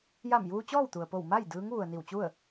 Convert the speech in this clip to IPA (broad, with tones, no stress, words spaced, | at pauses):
ja˧˩mjuː˧ t͡ɕɔː˥˨wt̪u˩ə̯po˧˩w ma˥˨j dɯː˧˥ŋ ʋu˩ə̯ni˧˩w t͡ɕu˥˨ə̯